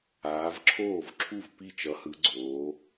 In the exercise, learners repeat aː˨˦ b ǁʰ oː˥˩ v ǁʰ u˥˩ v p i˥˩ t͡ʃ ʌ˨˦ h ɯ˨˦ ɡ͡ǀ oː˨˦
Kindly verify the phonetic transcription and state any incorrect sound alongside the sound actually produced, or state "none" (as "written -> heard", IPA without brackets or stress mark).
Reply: b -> v